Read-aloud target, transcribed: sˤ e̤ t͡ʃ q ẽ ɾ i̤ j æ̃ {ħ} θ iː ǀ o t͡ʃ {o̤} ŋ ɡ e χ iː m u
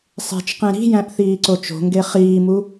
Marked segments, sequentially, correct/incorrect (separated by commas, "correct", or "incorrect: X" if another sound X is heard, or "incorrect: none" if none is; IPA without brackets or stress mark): incorrect: ʔ, correct